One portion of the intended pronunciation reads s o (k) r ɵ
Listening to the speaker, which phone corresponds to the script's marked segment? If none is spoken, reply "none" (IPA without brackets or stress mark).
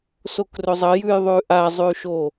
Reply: k